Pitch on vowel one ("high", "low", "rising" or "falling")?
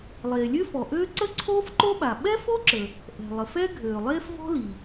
low